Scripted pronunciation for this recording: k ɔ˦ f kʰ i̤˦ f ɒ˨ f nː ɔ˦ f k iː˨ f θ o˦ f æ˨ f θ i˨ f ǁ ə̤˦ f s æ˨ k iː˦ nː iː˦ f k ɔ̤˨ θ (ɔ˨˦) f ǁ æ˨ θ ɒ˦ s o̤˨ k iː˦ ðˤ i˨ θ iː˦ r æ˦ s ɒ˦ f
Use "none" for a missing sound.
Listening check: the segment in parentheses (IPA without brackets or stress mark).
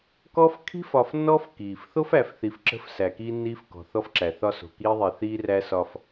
ɔ˦